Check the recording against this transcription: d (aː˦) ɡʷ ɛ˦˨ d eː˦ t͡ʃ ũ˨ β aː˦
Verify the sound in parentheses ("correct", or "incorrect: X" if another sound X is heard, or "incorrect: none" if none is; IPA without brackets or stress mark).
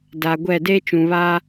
incorrect: aː˨